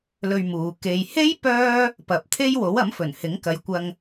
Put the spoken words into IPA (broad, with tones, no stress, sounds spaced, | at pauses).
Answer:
l ɵ˧ ɥ m uː˨ k e˨ j h e˥ j p œː˥ | p ɐ˨ p̚ t̪ʰ e˥ j w o˨˥ w ɐ˨˥ m f ɵ˨˩ n h ɪ˨˥ ŋ k ɐ˨ j kʷ ɐ˧ ŋ